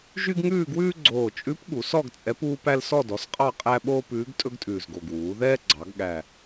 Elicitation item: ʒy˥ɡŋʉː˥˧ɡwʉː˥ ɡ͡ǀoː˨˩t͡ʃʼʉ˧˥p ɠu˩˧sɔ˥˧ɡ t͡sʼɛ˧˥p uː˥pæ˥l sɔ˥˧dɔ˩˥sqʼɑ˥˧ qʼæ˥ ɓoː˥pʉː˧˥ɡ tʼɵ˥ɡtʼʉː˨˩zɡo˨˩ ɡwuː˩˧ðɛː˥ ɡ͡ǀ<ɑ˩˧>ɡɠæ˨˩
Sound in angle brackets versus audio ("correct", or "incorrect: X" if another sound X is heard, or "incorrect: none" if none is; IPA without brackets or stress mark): correct